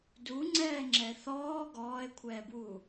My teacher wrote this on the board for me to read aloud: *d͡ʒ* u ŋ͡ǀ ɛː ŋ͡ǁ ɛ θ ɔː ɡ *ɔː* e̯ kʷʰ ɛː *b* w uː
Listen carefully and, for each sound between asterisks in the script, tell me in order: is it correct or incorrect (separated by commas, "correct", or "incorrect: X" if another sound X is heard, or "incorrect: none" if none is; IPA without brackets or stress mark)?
incorrect: d, correct, correct